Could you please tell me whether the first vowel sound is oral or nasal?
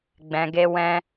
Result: nasal